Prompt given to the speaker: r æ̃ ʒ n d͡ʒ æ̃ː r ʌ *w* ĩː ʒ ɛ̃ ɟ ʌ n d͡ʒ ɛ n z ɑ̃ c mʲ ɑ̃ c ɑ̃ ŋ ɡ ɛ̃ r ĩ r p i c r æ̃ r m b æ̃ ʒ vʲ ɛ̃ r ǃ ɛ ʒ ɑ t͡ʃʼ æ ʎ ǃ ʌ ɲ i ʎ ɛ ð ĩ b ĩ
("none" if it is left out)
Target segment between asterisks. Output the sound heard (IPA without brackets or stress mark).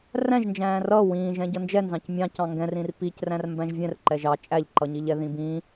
w